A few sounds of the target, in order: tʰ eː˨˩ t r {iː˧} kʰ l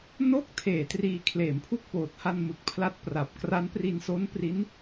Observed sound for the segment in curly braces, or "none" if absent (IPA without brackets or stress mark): iː˧